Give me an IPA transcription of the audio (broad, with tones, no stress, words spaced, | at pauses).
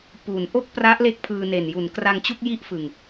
pu˩˦n ʔo˥˩k̚pra˦˥ʔ le˥˩k̚pʰɯː˧ne˨˩n ju˩˦nkra˧ŋt͡ɕu˥˩k̚ji˥˩ʔ fɯ˧ŋ